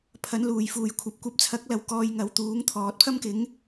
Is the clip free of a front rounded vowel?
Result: yes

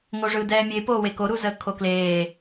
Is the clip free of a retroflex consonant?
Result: no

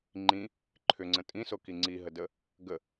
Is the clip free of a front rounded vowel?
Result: no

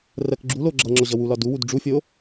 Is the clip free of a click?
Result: no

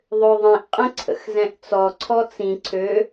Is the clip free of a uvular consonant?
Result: no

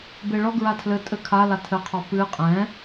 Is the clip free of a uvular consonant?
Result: no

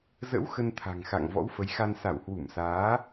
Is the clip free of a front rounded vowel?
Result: yes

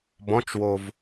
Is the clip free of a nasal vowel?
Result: no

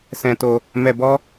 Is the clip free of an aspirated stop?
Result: yes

